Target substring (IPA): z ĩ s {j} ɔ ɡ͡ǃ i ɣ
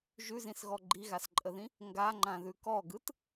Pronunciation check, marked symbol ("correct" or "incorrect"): incorrect